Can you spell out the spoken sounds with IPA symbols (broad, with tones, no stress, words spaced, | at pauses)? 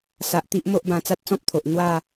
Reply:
sa˨ʔ t̪i˦ʔmo˦ʔbã˧ t͡sa˦t̚t͡sɔ̃˦p̚t̪ʰo˨ʔ n̪wa˥˧